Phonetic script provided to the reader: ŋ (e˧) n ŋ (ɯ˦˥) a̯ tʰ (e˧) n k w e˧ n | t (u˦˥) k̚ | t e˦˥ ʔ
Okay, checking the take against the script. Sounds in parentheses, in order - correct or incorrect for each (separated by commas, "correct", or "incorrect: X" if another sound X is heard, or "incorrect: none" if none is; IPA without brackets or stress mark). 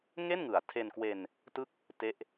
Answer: incorrect: e˥˩, incorrect: ɯ˩˦, correct, incorrect: ɯ˦˥